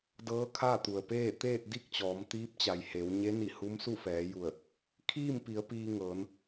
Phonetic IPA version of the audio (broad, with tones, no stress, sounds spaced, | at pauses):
d ɤː˧˥ kʰ a˥˨ t̪ u˩ ə̯ p eː˥˨ t̪ eː˥˨ t̚ d i˥˨ k̚ t͡ɕ ɔː˩˧ m t̪ iː˧˥ p̚ t͡ɕ a˩ j h e˩˧ w ɲ e˧˥ n i˧˩ h u˧˥ m s u˥˨ f ɛː˩˧ j u˧˩ ə̯ | kʰ iː˥˨ m p i˩˧ ə̯ p iː˧ ŋ ɤː˩˧ n